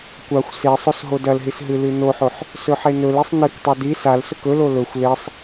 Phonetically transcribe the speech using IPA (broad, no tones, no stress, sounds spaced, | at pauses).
kʷ a xʷ s e sˤ o s ɦ o d ɐ l ɦ i s ɦ ɨ l ʉ n o ħ o ħ | s ɵ ħ e n ɵ l e sˤ n ɨ k tˤ o d i s a l s ɵ k ɵ l o l ɵ xʷ l e sˤ